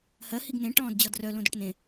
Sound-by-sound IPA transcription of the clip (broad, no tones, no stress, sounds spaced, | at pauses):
h ɜ h i ɡ n ẽ ʈ ɔ̃ː d d͡ʑ ɔ d r œ l õ d o ʈ n ẽ